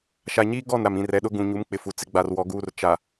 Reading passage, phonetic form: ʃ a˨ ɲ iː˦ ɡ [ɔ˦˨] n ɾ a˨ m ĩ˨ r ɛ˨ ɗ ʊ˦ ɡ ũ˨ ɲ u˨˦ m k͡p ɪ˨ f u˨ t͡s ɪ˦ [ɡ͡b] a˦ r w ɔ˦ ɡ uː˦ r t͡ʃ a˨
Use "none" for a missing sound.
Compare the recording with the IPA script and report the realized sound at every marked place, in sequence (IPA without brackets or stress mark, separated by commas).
ɔ˦˨, ɡ͡b